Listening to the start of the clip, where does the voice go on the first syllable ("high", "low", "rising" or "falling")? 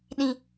high